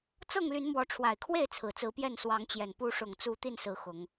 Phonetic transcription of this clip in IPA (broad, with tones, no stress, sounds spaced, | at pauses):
t͡s ɤ˥˨ ŋ l y˨˦ n m w ɔ˨˦ ʈ͡ʂʰ w a˨˩ ɪ̯ kʰ w e˥˨ ɪ̯ t͡sʰ ɹ̩˨˩ t͡s ɹ̩˨˦ p j ɛ˥˨ n s w ɑ˨˦ ŋ t͡ɕ j ɛ˨˩ n p u˨˦ ʂ ʊ˨˩ ŋ t͡s u˨˦ t̪ i˥˨ n s ɹ̩˨˦ x ʊ˨˦ ŋ